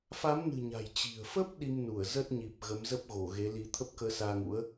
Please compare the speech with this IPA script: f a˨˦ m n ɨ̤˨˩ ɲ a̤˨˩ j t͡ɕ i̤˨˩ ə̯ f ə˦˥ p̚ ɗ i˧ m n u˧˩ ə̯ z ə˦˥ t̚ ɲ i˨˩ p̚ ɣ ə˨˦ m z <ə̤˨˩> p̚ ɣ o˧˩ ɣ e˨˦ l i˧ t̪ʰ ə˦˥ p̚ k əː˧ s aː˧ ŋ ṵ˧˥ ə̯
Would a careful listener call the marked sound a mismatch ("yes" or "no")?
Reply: yes